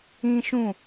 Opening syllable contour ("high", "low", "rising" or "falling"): high